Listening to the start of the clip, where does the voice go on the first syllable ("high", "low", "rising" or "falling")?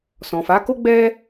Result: low